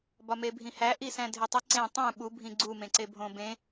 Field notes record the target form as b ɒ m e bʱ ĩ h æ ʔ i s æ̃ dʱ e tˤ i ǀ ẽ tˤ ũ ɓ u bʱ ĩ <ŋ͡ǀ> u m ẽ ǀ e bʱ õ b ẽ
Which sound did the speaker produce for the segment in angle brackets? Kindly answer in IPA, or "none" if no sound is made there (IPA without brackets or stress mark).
ɡ͡ǀ